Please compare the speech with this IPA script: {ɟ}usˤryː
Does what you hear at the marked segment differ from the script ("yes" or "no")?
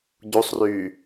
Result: no